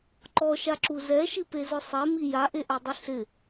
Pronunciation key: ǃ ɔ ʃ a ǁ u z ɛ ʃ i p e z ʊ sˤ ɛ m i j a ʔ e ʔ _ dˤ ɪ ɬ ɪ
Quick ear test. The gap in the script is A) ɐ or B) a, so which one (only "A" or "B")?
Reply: B